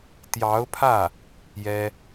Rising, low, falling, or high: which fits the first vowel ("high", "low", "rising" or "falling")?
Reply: rising